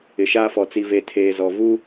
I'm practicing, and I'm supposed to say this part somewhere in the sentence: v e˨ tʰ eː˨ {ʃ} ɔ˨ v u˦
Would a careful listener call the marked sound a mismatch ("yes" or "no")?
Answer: yes